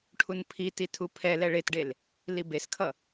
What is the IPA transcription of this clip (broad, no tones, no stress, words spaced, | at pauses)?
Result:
ʈʰunpʰiti tʰupʰɛlɛ ɭetɖel | libeskʰʌ